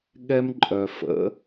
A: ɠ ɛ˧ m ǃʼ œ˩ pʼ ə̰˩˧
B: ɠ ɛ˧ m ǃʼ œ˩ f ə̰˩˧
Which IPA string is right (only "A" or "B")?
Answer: B